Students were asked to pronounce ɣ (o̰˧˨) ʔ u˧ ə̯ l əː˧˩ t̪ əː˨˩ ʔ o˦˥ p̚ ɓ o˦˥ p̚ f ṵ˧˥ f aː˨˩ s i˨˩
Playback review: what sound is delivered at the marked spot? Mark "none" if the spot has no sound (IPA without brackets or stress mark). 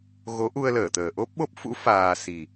o˨˦